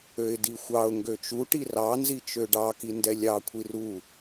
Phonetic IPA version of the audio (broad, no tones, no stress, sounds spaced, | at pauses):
ø ɪ̯ d i xʷ ɑ ʊ̯ ŋ ɡ ø t͡ʃ u ʈ i r ɑ n z i t͡ʃ ø ɖ ɑ k i n d ɛ lʲ ɑ kʷʰ i r u